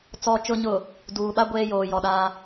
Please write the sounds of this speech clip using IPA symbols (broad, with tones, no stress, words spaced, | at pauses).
t͡sɔ˨t͡ʃʊ˨ɲʊ˨ | duː˨ɓa˦ ɡʷeː˦joː˨ jɔ˨ɗaː˦